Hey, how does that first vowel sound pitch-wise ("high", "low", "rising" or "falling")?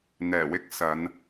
low